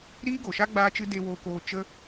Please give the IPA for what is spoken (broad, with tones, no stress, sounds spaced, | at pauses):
ɾ iː˦ ɡ o˨ ʃ a˦ ɡ͡b aː˦ t͡ʃ ɨ˦ d e˧ w oː˧ k oː˧ t͡ʃ ə˦